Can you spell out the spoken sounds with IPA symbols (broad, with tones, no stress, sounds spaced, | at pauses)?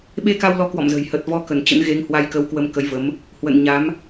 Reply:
ɓ e˧ k a˧ w l ɔ˨˦ k w ɔ̰˧˨ m z ə̤˨˩ j h ə˨˩ t̚ v ɔ˧ k ə˧˩ n t͡ɕ ə̰˧˥ n ɣ e˨˦ ŋ h w a˧ j k ə˨˦ w k w ə˧ m k ə˨˦ j v ə˨˦ m | h w ə̰˧˨ n ɲ a˨˦ m